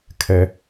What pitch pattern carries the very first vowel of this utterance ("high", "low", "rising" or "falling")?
low